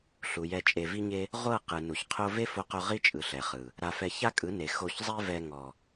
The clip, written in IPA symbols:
ɬ u˨ j ɛ˧ t͡ʃʼ e˧ v i˦ ɲ e˦ | ʁʷ ɤ˦˨ q ɯ˨ n u˨ ç qʰ o˦ v e˦ f o˧ q o˧ ʁ i˦ t͡ʃʼ ɯ˨ ɬ ɛ˨ χ ɯ˨ | ɾ a˧ f ɛ˧ ç a˦ kʼ ɯ˨˦ n e˨ x o˧ ç zˤ e˦ v ɛ˧ ŋ ɔ˨

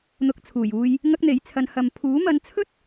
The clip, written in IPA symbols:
n̪ ʊ˧ k̚ t͡sʰ uː˨˩ j uː˧ j | ŋ ɐ˥ k̚ n̪ e˨˥ j t͡sʰ ɐ˧ n h ɐ˨ m pʰ uː˨˥ m ɐ˨˧ n t͡sʰ ɵ˥ t̚

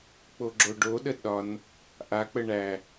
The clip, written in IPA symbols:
k͡p o ɡ͡ǁ o ɖ o ɗ ə ɗ ɒ n | ʔ a k͡p ə ɳ æ

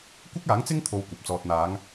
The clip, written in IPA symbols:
kʷ ɪ˥ k̚ aː˨˥ ŋ t͡s ɪ˥ ŋ t̪ʰ o˧ w kʷ ɐ˨ p̚ t͡s ɔː˨ t̚ n̪ aː˨˧ ŋ

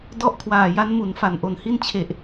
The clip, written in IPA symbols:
d ɔ˥˩ ʔ kʰ w aː˨˩ j a˦˥ n m u˩˦ n f a˨˩ n ʔ o˨˩ n h i˥˩ n t͡ɕʰ e˨˩ ʔ

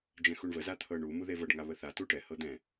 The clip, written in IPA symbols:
d͡ʒ ɛ̃ x u ɳ v ə z a t̪ʰ ɤ ɳ u m u ð e v ɤ ɖ ŋ a β ə θ a t u ʈ ɛ h ɤ d̪ ɛ̃

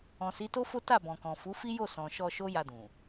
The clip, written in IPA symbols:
ɔ̃˨ s i˨˦ t o˦ f o˦ t a˦˨ b ɔ̃˨ k ɔ̃˨ f u˨˦ f i˦ j o˦˨ s ɔ̃˨ ʃ ɔ˧ ʃ o˦ j a˧ d ũ˨

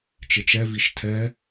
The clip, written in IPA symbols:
t͡ʃ ɪ t͡ʃ ɛ v i ʃ tʰ ɛ

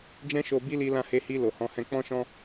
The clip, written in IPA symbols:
d͡ʒ ɛ̃˦ ʃ o˧ b i˦ l i˧ l ã˧ h e˧ h i˧ l o˨ h ɔ̃˧ h ɛ̃˧ k͡p ɔ̃˦ ʃ ɔ̃˦

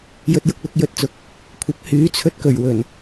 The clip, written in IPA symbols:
j ɵ˧ t̚ j ʊ˧ k̚ l ʊ˧ k̚ j ɵ˨ t̚ t͡s ʊ˨˥ k̚ | kʷʰ ɐ˨˥ p̚ h yː˨˥ t͡sʰ ɵ˧ t̚ k ɵ˨˩ ɥ w ɵ˨˩ n

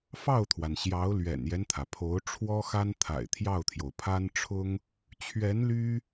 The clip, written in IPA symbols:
f ɑ˥˩ ʊ̯ t̪ʰ w a˩ n ɕ j ɑ˧˥ ʊ̯ l ɥ ɛ̰˨˩ n j ɛ˦ n t̪ʰ ä˩ pʰ o˧˥ ʊ̯ ʈ͡ʂʰ w ɔ˥ x a˥ n t̪ʰ a̰˨˩ ɪ̯ t̪ʰ j ɑ˥˩ ʊ̯ t̪ʰ j o˩ ʊ̯ pʰ a˥ n ʈ͡ʂʰ ʊ˥ ŋ | t͡ɕʰ ɥ ɛ˧˥ n l y˥

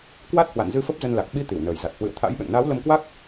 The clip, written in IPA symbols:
k w a˦˥ t̚ h w a̰˧˨ n z ɨ˧ f ə˦˥ p̚ z ə˧ n l a˨˩ k̚ ɓ i˨˦ t̪ i˧˩ w n əː˨˩ j z a˨˩ t̚ h w ɨ̰˧˨ ə̯ t̪ʰ a̰˧˥ j ɓ ɛ̰˧˨ ŋ n aː˨˦ w l ə˧ m k w a˦˥ k̚

